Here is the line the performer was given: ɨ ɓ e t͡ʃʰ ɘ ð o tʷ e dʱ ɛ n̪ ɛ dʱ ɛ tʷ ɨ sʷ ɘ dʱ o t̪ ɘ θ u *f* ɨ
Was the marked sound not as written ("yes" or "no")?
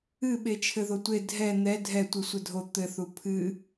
yes